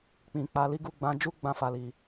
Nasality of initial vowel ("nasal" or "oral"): nasal